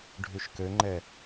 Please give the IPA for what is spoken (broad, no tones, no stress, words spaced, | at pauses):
ɖʱyʃkøŋ͡ǃɛ